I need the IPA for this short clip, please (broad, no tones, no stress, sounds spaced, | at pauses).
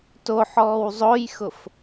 t o ħ ɔː w zˤ o j x ʊ f